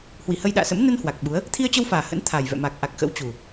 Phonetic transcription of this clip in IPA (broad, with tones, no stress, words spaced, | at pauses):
hwi˧˩hə˧jɗa̰ː˧˨sə̰˧˥m nə˧n hwa˨˩k̚ɓu˨˦ə̯ | t̪ʰi˧ə̯t͡ɕə˧wfaː˨˩ hə̰˧˥nt̪ʰa˨˩jvɛ̰˧˨ ma˨˩k̚ʔa˨˩k̚ xə̰˧˥wt͡ɕu˨˩